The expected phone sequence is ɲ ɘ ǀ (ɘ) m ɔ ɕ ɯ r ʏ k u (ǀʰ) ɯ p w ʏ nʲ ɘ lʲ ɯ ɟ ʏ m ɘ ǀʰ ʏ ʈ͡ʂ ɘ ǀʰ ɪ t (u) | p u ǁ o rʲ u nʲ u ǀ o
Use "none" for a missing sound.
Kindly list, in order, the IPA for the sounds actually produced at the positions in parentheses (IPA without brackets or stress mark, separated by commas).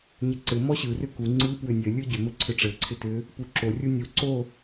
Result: ɘ, ŋ͡ǀ, ʏ